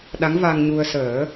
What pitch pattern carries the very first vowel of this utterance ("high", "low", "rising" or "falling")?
rising